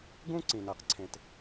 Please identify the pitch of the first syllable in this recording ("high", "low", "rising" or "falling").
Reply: high